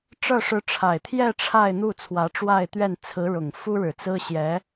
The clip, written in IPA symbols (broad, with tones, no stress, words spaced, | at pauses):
ʈ͡ʂɤ˥˩ʂɻ̩˧˥ʈ͡ʂʰa˨˩ɪ̯ t̪ʰjɛ˥˧ ʈ͡ʂʰa˥˧ɪ̯n̪u˥˩ t͡sʰwä˧˥ʈ͡ʂwa˥˧ɪ̯t̪ɥɛ˥˩n t͡sʰɹ̩˧˥ɻʊ˨˩ŋ fu˥ɻɻ̩˨˩t͡sɹ̩˥ ɕjɛ˧˥